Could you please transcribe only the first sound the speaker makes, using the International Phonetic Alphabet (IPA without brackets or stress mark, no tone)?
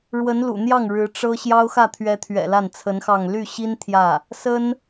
ɻ